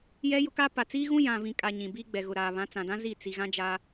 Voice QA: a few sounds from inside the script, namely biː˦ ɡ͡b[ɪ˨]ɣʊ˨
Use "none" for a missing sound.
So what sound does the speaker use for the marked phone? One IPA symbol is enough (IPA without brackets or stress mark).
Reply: ɛ˨